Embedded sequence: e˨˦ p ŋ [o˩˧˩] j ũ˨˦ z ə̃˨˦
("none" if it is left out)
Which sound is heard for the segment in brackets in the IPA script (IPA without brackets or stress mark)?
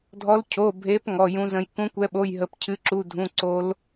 ɔ˩˧˩